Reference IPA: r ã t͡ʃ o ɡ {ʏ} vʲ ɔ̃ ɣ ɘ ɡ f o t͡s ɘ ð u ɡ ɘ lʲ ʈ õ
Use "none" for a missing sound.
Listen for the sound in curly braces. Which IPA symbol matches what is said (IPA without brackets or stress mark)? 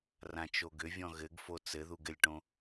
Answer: ʏ